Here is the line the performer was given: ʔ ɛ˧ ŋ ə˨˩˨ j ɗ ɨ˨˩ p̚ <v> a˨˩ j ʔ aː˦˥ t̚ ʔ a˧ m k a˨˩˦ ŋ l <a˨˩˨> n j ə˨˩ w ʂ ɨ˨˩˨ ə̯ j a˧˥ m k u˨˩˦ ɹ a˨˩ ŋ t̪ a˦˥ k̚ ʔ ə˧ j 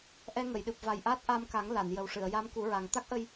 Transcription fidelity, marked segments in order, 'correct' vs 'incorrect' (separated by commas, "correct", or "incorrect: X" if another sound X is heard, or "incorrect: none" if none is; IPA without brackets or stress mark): correct, correct